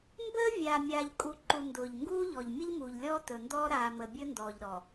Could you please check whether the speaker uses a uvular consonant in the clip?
no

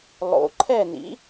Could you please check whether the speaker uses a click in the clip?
yes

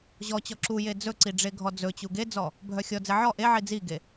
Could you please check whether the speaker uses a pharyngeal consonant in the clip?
yes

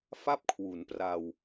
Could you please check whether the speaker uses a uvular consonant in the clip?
no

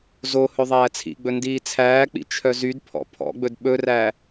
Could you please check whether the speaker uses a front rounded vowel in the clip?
yes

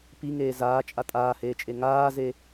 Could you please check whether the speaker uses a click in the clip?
no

